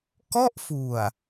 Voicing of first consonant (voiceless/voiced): voiceless